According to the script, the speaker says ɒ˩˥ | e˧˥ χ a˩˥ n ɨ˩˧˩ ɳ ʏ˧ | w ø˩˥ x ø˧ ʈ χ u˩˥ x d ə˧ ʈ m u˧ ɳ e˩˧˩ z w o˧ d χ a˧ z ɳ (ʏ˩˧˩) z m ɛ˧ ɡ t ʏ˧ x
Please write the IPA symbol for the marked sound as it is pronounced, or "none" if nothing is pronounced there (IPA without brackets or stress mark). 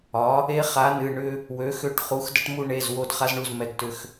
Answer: u˩˧˩